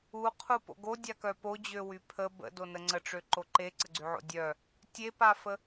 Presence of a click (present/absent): present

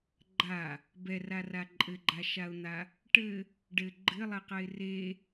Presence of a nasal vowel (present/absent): absent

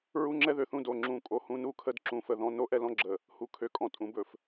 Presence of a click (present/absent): present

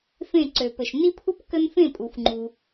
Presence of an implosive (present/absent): absent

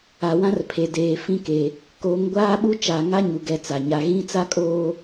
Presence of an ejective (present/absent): present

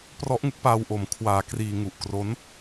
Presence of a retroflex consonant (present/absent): absent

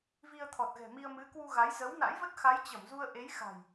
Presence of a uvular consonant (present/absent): absent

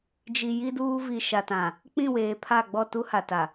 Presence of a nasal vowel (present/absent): present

